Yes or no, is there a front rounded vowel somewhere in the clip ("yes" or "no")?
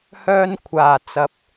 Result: yes